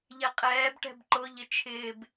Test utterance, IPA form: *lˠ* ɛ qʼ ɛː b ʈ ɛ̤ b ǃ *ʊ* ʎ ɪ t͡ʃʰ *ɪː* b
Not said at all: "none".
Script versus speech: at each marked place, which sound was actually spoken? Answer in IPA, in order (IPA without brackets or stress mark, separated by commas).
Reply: ʎ, ʊ, ɪː